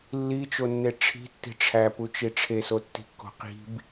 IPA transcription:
lː i t͡ʃ o nː e ʈ͡ʂʰ i̤ tː i̤ ʈ͡ʂʰ æ p u t͡ʃ i ʈ͡ʂʰ e s o tː i̤ kː o̤ q i̤ b

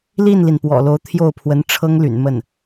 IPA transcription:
l i˥˩ n l i˩ n p w ɔ̰˨˩ l o˧˥ ʊ̯ t̪ʰ j o˥˩ ʊ̯ pʰ w ə˧˥ n ʈ͡ʂʰ ɤ˥ ŋ l y̰˨˩ n m ə˥˩ n

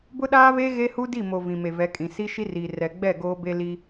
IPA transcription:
b ʊ˦ ɗ aː˦ β e˦ ɣ e˦ h u˦ d i˦˨ m o˨ v ĩ˨ m e˨ v ɛ˨˦ kʼ ĩ˨ s i˦ ʃ i˦ r iː˨ r ɛ˨ ɡ͡b ɛ˦˨ ɡ oː˦ b e˦ l i˦

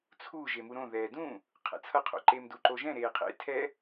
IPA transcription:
t͡sʰ u ʒ e m u ɾ õ ð ɛː d ũ | qʰ ɛ̰ t͡sʰ ʌ qʰ o̰ ǃ eː m d u ǃ o ʒ ɛ̃ ɾ eː qʰ ḛ tʰ ɛ

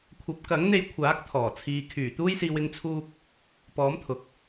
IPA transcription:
kʷʰ ɐ˨˥ p̚ k ɐ˨˥ ŋ n̪ e˧ j kʷʰ aː˨˥ k̚ t̪ʰ ɔː˨˩ t͡sʰ iː˨ kʰ yː˨˩ t̪ uː˧ j s iː˨ w ɪ˨˧ ŋ t͡sʰ uː˧ k̚ | p ɔː˨˥ m t̪ʰ ʊ˨ k̚

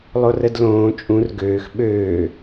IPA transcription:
lˠ o r ə d l õː t͡ʃʼ ũ r ɡ øː x ɓ øː

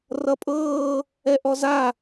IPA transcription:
r ʌ pʼ ɤː | ɛ ʔ ɔ z a

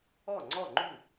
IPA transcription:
ɔ˥˩ ŋ͡ǀ ɔ˥˩ ŋ͡ǃ u˥˩

